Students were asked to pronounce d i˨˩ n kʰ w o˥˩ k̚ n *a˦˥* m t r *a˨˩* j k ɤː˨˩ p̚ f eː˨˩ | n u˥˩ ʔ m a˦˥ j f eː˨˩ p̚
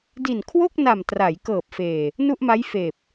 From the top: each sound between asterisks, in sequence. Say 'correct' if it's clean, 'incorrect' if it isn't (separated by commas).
incorrect, incorrect